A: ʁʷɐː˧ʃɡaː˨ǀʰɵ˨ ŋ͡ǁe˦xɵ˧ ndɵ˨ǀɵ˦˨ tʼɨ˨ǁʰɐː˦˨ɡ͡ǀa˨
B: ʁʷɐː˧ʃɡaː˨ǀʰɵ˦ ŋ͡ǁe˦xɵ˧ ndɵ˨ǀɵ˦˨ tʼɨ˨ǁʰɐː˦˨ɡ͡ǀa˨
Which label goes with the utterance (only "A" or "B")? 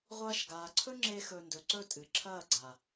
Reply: B